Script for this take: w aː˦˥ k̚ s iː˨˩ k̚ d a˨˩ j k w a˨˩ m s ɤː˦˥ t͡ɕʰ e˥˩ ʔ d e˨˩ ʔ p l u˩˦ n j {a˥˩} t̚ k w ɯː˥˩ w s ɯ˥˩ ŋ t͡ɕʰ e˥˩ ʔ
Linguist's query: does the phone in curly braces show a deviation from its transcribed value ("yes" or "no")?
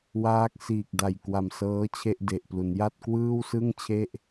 no